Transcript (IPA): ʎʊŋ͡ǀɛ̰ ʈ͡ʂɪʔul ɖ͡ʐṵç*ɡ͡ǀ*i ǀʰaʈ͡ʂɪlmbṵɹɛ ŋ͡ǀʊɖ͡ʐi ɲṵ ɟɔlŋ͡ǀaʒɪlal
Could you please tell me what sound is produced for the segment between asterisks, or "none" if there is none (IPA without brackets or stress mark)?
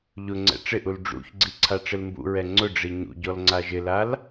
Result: ɡ͡ǀ